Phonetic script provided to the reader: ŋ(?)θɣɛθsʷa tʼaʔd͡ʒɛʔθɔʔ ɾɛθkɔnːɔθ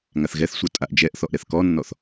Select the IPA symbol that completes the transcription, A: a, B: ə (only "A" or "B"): A